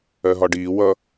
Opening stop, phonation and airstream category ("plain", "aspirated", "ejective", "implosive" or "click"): plain